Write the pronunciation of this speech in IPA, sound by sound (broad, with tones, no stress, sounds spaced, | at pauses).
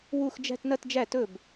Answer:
w u˥˧ x d͡ʒ æ̤˥˧ t n ɐ˥˧ t d͡ʒ æ˥˩ t ɵ˥˩ b